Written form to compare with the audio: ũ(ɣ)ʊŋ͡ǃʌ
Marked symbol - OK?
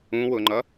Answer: no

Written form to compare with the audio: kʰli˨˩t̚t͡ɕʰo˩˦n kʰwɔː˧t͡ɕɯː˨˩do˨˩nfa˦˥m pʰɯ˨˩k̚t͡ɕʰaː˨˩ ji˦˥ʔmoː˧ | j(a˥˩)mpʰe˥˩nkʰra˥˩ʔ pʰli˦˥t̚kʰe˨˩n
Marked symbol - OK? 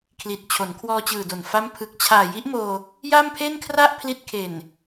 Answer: yes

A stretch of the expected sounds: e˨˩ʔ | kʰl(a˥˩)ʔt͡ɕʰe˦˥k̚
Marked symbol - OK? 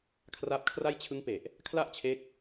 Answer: yes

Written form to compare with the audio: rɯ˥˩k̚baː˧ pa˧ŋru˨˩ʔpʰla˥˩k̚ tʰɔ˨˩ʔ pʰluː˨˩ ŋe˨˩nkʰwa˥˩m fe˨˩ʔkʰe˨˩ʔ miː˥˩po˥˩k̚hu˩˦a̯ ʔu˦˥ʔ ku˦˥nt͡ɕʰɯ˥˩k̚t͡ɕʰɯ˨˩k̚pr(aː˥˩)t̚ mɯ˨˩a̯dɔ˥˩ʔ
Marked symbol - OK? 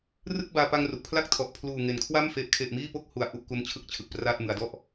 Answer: yes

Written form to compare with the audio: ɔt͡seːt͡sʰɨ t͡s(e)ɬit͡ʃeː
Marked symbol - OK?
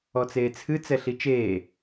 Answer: no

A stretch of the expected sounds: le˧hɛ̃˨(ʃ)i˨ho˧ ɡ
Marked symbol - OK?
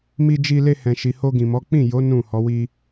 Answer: yes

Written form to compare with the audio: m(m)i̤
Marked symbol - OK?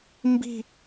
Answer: no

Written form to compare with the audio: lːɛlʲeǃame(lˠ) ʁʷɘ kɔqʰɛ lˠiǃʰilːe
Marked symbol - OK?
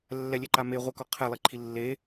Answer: no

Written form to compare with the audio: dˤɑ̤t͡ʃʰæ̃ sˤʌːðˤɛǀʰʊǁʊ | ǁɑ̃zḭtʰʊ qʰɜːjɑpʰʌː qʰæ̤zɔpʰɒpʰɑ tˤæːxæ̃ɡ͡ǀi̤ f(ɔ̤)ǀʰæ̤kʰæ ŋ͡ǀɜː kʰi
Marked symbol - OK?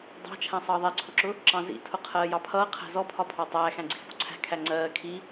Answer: yes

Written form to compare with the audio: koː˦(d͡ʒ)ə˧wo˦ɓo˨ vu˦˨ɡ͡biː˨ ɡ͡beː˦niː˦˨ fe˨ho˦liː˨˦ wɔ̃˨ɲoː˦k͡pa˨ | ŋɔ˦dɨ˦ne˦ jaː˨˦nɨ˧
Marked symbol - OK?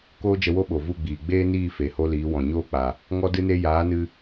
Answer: yes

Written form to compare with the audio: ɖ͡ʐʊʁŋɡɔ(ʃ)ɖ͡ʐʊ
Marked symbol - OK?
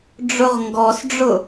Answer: no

